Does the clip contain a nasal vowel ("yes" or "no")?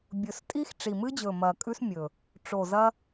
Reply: no